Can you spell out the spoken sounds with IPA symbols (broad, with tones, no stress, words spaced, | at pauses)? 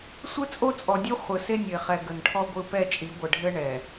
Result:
sʷɯ˦t͡sʼo˦t͡sʼɔ˨dʲo˦ χʷɯ˨se˦nʲə˨ɪ̯χɛ˨ ɡə˨nʈʰɔ˦ɡʷɯ˦˨ pɛ˦˨t͡ʃʼi˨˦ ɡʷə˨ɖʱɘ˦ ɳɛ˨